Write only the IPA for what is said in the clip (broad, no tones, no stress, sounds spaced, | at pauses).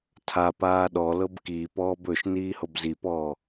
tʰ a p aː ɗ ɔ l ɤ b k iː p ɔː b ɵ ʃ n iː h o b z i p ɔː